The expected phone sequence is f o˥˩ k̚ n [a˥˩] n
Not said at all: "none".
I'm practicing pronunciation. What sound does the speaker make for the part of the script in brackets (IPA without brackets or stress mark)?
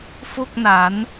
a˩˦